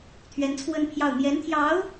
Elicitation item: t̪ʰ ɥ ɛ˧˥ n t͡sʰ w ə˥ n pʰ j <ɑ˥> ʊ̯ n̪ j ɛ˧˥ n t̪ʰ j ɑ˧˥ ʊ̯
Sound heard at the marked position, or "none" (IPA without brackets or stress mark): ɑ˥˩